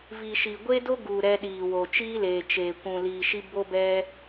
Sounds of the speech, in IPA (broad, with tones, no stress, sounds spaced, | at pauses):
v i˨ ʃ i˨ ɡʷ e˦ d o˦ ɡ u˨ ɾ ɛ˧ ɗ iː˨ w o˨ t͡ʃ iː˦ l eː˨ t͡ʃ eː˨ kʷ ũ˨ l iː˨ ʃ i˧ b o˧ b ɛ˧